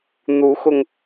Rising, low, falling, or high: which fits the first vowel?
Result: rising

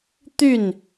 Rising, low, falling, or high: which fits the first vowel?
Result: falling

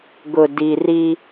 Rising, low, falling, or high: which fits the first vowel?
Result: low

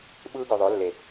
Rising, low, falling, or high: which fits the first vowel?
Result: high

